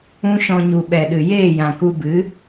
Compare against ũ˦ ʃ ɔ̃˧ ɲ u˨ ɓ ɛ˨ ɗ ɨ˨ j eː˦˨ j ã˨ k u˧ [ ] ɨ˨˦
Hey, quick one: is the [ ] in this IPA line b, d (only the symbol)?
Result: b